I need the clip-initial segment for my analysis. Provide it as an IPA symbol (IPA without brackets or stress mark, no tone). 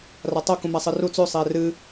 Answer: r